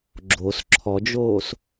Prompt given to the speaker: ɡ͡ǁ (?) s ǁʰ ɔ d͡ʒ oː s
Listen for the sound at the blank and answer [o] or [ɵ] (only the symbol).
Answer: o